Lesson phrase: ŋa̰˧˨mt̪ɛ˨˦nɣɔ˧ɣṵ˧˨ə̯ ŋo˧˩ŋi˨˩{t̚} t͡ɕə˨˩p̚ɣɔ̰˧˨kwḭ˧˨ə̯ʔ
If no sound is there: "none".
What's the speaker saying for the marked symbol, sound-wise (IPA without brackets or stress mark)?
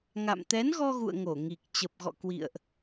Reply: k̚